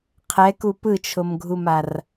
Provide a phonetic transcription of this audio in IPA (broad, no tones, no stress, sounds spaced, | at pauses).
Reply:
qʰ ɛ k u p ɯ t͡ʃʰ o m ɡʱ u m a r